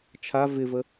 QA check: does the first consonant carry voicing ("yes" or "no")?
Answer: no